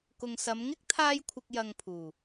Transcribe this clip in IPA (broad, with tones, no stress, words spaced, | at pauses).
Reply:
kʊ˨ŋsɐ˨˧m ŋɪ˥k̚t̪ʰaː˧jkʷʰɪ˨k̚ jɐ˧ŋpʰuː˨˩